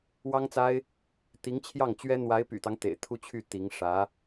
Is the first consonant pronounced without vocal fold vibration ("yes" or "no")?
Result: no